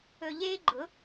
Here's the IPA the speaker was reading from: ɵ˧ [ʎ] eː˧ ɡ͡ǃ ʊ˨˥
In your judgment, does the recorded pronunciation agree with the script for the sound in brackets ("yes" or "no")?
yes